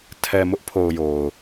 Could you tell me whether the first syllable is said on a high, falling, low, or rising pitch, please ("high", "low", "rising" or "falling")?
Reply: low